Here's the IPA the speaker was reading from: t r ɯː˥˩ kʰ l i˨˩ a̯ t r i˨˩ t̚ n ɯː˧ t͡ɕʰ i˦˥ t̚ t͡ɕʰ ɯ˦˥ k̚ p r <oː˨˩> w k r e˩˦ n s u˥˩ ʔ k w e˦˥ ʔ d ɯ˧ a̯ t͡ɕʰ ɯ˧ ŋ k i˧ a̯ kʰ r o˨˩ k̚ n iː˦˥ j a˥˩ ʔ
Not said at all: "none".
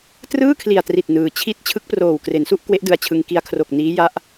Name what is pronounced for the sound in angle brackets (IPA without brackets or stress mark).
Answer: oː˨˩